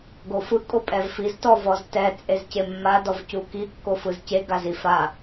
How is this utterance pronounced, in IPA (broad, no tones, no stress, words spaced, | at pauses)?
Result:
ɡofɯ kʼopʼɛvfiz tɔvɔztɛ t͡sʼezcemːa dɔvcuki kːofɯzce ɡazifa